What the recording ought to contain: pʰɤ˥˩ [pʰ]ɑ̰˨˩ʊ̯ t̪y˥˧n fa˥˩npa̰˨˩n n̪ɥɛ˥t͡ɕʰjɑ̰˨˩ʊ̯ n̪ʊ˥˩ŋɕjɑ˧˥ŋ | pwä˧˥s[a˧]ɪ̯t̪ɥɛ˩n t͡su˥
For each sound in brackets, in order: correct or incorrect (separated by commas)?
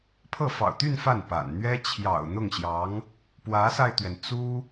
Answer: incorrect, correct